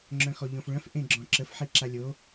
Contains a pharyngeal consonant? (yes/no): yes